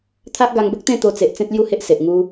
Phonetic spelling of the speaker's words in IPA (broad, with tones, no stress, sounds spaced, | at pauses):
t̪ʰ a˦ ʔ ɡ a˧ ŋ b ə˦ k̚ t̪ ẽ˥˧ t̪ o˧ t͡s e˨ ʔ t͡s ẽ˦ t̚ l j u˥˧ h e˦ ʔ s e˨ ʔ ŋ u˧